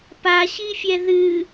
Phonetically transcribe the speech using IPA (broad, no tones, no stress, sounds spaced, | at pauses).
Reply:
p a ɕ i fʲ ɛ ð ɨ